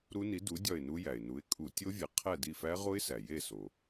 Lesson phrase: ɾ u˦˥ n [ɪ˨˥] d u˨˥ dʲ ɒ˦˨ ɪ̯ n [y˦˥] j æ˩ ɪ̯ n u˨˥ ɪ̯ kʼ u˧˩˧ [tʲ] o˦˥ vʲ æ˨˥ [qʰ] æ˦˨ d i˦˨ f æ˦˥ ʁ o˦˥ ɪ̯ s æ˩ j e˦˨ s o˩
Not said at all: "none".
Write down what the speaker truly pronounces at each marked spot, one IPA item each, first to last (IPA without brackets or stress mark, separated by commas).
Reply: i˨˥, u˦˥, tʲ, qʰ